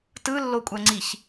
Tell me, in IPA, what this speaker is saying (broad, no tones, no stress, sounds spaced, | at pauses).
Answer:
t ɯ lː o kʷʼ æ ŋ͡ǀ i ç